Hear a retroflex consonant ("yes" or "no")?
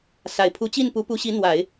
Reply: no